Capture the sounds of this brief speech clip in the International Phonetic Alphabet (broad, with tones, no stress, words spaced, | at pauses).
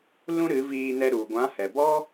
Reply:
lũ˦ɾɨ˨˦viː˧nɛ˧ ɾu˨ ɡʷã˨˦hɛ˨bɔ˦